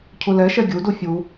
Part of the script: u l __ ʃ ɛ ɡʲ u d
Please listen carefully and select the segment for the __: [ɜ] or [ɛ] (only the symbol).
ɛ